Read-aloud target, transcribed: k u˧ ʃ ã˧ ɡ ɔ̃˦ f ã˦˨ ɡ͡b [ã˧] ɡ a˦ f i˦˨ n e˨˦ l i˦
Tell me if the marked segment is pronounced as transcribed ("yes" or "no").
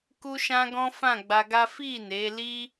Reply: no